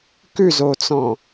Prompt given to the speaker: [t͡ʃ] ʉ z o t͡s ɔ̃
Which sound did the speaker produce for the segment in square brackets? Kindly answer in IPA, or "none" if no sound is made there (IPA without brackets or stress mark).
k